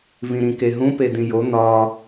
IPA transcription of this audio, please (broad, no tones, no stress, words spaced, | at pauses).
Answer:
vĩɾĩkeɦũ pedĩjo n̪ɒ